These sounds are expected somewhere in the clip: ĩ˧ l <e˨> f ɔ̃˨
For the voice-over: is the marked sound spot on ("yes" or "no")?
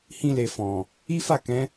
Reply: yes